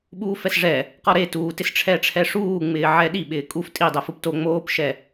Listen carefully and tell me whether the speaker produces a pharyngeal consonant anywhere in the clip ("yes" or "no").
yes